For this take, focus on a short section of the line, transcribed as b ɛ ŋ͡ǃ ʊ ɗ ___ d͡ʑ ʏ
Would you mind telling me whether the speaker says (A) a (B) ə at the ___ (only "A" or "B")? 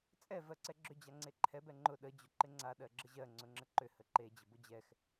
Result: B